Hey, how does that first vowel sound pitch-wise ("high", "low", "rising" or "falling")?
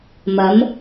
rising